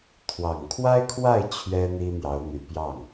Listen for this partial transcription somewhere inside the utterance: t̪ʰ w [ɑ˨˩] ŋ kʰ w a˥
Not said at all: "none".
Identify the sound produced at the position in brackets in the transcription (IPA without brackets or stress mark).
ɑ˨˩